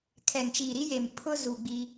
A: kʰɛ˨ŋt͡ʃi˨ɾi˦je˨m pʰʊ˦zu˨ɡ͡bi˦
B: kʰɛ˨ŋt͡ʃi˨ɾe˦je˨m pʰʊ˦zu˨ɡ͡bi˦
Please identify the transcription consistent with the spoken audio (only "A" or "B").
A